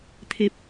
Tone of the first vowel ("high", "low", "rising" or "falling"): low